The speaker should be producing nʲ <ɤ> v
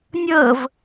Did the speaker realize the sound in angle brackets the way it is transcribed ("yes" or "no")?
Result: yes